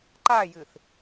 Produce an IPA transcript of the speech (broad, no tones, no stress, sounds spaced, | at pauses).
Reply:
ǃ a j ɨ θ